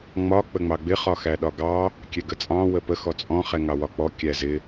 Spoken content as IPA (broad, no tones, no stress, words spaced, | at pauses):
ŋ͡mɒ k͡pəŋ͡mɑɡ͡bɪ χɒxæɗɒɡɑ | kʲɛɡət͡sʼɑ̃ wəpə xɔt͡sʼɔ̃ χɛŋɑwɒk͡pɔ kʲæzɪ